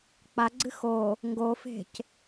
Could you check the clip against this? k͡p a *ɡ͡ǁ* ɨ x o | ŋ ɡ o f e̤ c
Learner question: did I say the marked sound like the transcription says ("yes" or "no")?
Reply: no